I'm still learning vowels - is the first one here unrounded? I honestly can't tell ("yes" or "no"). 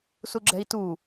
no